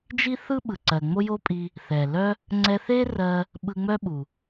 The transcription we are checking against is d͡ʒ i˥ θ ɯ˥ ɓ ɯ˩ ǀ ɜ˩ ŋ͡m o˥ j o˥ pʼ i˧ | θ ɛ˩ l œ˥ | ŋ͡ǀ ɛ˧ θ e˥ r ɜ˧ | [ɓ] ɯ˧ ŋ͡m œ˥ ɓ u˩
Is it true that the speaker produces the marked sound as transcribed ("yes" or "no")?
yes